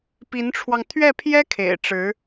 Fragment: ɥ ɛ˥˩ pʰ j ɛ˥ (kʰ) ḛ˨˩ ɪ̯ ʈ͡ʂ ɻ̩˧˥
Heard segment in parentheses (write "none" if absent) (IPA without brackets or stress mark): kʰ